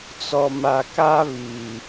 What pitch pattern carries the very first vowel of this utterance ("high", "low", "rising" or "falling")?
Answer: low